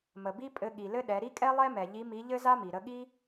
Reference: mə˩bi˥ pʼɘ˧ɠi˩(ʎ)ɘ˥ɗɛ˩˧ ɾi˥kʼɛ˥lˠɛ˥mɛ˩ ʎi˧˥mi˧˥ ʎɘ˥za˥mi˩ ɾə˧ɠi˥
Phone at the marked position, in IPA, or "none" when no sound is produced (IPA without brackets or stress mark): l